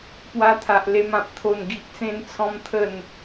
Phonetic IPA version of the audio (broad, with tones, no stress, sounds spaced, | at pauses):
p w a˧ t̪ʰ a˨ ʔ l e˧ m ã˨ p̚ t̪ʰ o˥˧ n ɡ i˦ ʔ t͡s ẽ˦ n t͡sʰ ɔ̃˦ m t̪ʰ ə˥˧ n